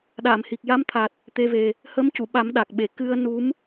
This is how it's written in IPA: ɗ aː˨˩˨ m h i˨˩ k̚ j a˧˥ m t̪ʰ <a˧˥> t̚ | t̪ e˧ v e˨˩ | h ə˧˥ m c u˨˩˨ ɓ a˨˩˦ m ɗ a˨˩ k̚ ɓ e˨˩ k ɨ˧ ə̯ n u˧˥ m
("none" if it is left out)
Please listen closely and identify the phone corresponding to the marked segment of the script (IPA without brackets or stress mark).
a˨˩